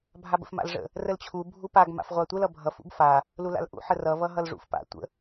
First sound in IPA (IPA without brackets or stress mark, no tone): bʱ